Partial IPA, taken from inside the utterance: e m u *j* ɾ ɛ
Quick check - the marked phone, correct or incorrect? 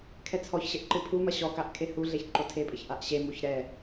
incorrect